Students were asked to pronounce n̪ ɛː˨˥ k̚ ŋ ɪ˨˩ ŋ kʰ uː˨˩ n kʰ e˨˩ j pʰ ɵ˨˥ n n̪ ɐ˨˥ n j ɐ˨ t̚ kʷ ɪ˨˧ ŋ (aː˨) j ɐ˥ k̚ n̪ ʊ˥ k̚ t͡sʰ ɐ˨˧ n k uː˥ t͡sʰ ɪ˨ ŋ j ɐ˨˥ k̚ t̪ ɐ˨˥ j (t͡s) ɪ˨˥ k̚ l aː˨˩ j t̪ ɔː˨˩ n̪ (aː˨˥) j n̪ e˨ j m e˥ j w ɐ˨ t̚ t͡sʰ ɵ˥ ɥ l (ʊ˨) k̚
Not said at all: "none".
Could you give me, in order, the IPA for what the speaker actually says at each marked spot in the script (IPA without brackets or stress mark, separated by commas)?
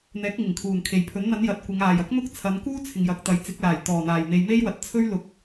aː˨, t͡s, aː˨˩, ʊ˨˥